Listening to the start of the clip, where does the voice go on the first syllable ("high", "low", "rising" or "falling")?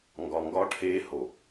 low